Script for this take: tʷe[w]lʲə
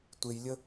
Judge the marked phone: incorrect: j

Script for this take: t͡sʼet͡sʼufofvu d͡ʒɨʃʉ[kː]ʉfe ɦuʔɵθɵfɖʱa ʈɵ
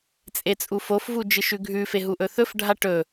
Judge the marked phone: incorrect: ɡʱ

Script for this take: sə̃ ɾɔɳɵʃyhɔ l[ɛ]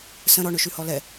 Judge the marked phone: correct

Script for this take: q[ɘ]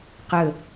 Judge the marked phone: correct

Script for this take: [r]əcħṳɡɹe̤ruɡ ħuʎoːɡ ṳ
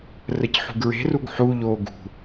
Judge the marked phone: correct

